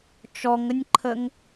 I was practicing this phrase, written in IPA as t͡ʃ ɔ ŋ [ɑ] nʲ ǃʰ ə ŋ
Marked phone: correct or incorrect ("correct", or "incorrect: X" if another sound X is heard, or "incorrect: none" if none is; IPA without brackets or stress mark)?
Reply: incorrect: ə